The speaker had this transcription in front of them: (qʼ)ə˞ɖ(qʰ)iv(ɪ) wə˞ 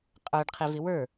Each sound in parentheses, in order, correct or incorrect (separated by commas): correct, correct, correct